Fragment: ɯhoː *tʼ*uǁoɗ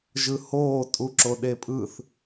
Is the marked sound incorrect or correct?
correct